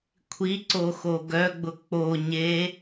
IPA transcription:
kʷʰ i ǀ o x o ɡ œ ɡ͡b ʊ k͡p o ɲ e

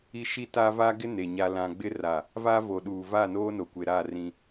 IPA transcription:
i˦ ʃ i˦ t a˦ v a˦ ɡ ɪ˦ n e˨ ɲ a˨ l ã˨ ɡ͡b ɪ˦ r a˦˨ | v a˦ v o˨ ɗ uː˨ v a˦˨ n oː˦ n o˨ kʷ e˨ ɾ a˦˨ r ĩ˦

